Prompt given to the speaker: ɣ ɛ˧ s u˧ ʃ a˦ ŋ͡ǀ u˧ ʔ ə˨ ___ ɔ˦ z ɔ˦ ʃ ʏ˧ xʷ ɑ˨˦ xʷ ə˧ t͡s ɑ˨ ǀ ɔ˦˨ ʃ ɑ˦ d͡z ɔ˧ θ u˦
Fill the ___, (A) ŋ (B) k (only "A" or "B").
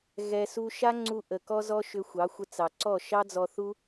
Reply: B